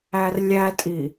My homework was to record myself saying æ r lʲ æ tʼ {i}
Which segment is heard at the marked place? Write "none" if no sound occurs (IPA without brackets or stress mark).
i